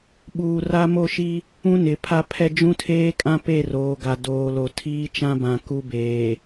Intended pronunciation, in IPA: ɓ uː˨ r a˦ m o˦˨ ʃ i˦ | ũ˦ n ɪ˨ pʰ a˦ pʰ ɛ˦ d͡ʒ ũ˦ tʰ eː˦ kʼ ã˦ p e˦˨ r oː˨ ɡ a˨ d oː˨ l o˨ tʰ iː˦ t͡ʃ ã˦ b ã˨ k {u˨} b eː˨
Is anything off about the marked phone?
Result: yes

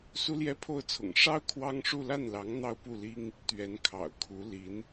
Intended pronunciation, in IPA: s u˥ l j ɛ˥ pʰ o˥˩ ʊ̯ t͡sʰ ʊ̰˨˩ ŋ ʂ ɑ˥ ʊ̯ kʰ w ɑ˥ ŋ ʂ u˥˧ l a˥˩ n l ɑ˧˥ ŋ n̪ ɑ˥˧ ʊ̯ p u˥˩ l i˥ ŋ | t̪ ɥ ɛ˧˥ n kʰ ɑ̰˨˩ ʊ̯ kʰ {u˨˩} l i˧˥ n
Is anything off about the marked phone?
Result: yes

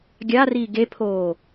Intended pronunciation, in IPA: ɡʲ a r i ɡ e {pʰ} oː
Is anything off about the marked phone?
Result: no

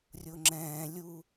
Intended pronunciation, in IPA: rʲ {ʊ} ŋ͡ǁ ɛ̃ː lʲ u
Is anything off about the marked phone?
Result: no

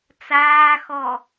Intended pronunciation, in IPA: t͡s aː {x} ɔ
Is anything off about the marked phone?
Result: no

